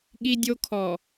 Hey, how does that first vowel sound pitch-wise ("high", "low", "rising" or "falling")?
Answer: high